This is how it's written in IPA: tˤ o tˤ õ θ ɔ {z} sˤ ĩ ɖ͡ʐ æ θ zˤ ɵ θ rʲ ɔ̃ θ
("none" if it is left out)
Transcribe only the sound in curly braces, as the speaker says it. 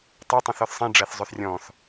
θ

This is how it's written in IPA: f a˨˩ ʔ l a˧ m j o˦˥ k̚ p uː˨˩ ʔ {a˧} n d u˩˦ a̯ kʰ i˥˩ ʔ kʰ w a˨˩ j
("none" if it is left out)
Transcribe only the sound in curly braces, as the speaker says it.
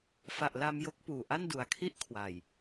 a˥˩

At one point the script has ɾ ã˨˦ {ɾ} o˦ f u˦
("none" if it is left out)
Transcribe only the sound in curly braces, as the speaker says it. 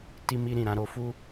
ɾ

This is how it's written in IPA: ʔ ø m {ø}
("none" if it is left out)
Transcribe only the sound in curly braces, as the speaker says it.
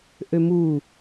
u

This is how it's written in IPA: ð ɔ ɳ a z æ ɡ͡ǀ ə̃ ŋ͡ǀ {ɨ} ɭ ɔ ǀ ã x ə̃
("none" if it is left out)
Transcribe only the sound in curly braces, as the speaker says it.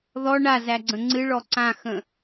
ɨ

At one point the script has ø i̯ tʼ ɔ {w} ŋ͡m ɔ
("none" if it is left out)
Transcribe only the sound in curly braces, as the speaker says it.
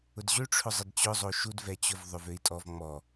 v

